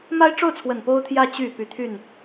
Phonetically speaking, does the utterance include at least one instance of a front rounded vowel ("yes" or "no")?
yes